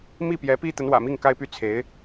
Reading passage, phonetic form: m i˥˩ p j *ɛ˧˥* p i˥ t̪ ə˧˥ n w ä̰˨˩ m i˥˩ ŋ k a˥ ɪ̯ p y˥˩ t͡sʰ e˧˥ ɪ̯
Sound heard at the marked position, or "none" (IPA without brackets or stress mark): ɛ˧˥